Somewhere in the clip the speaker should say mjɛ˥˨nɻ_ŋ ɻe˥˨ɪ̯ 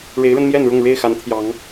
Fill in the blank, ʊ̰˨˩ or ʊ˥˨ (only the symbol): ʊ˥˨